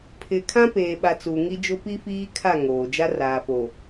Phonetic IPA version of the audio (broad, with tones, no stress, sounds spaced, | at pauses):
pʰ ɪ˨ kʰ ã˦ p eː˨ ɓ a˨ t͡s u˨ ŋ i˦ d͡ʒ ʊ˦ p i˦ f iː˦ kʰ a˦˨ ŋ oː˨ d͡ʒ a˦ r aː˨ f o˨